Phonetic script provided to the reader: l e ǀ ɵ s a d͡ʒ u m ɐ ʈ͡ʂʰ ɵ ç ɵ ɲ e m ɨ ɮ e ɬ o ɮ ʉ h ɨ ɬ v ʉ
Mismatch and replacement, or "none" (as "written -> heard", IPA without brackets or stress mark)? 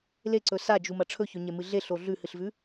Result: none